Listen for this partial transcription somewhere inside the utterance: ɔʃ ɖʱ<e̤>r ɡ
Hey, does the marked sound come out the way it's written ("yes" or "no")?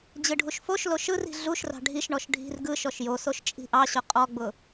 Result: no